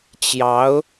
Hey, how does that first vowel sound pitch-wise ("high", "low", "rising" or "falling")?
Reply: rising